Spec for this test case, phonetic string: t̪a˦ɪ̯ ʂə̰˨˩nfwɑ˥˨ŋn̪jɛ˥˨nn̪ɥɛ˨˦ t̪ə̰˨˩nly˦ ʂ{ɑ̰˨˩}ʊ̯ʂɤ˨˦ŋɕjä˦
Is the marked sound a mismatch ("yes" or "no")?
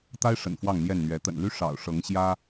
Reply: no